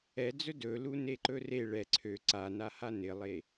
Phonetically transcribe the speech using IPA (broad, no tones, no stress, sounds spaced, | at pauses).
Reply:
ɛ d͡z ɵ d ɵ l u n e ǃ ɵ r e ɭ ɛ ǀʰ ø ǀ a n a h a n ɪ lˠ e